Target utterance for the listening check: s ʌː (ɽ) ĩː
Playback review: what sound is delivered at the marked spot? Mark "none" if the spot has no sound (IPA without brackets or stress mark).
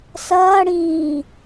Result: ɽ